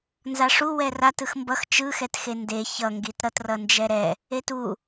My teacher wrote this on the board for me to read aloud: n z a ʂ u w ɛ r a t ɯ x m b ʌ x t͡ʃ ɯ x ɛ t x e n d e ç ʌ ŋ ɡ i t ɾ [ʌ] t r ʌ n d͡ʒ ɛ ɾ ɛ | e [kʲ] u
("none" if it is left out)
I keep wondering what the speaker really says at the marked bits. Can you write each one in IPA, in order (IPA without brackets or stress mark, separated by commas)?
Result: ʌ, t